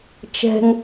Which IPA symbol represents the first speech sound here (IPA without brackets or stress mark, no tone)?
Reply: t͡ʃ